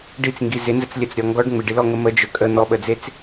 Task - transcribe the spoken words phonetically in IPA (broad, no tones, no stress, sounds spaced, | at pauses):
ɖ i t͡s ŋ ɡ i z ɪ n z ə t͡s lʲ ə t͡s ɾʲ ɔ ŋ ɡ ɔ ɖ ŋ͡m ɪ ɖ i l ɔ ŋ ə m ə d͡ʒ ɵ kʼ ə n̪ ɔ ɓ ə d͡z e t͡s